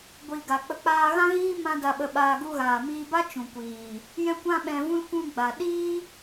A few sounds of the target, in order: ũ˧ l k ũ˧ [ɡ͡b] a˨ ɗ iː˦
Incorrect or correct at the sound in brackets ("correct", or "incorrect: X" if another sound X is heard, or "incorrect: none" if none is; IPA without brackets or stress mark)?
correct